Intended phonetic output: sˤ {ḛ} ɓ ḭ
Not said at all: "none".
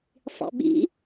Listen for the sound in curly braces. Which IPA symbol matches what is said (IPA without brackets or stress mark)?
ḭ